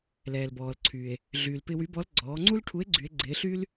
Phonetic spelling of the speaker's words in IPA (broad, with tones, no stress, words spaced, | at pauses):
lɛː˩l bɔː˩lǀʰyː˩e̯ | ɮyː˩lpɪ˧wy˧˥ bɔ˧˥l ɡ͡ǀɔː˩˧ŋ͡ǀu˥lʈʰu˧˥e̯ ɡ͡ǀy˧˥e̯ɡ͡ǀɪː˧˥ ɬyː˥l